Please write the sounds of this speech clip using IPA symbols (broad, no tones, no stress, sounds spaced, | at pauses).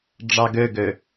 ɖ͡ʐ ɑ ɡ ø ɡ ø